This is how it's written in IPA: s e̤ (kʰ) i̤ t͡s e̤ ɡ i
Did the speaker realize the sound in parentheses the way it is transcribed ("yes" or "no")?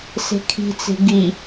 yes